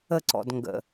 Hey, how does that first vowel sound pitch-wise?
falling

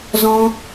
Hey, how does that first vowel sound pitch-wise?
high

